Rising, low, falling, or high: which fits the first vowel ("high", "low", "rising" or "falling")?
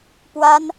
high